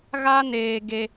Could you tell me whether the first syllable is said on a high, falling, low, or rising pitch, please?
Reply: high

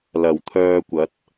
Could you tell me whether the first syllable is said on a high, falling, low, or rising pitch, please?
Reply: low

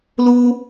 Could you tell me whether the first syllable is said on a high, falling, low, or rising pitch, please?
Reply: high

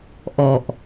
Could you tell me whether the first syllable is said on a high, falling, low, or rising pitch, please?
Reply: low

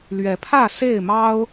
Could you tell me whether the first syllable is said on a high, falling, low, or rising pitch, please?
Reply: rising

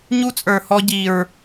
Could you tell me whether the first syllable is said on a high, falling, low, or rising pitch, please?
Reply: high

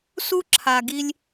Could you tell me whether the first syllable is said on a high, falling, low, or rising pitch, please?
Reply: high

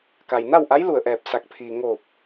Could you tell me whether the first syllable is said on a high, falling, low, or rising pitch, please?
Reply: low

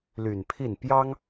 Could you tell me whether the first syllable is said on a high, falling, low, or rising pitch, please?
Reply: low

